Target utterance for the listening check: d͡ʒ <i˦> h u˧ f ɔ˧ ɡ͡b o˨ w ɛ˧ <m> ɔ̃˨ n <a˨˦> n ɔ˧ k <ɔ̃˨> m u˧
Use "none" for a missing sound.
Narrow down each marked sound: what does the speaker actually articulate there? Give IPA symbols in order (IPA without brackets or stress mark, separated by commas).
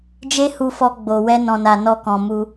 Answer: e˦, n, a˨, ɔ̃˨